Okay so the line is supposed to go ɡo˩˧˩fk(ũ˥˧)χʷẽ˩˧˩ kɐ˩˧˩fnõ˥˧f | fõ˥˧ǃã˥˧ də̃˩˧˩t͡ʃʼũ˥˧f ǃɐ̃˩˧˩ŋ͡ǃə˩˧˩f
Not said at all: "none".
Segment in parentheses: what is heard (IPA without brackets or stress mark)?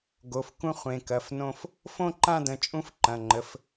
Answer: ũ˥˧